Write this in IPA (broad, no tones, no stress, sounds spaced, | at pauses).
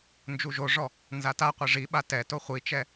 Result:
n d͡ʒ u ʒ o ʐ ɔ | n z a t a qʷ i ʐ i ɓ a t ɛ t o χʷ i t͡ʃ ɛ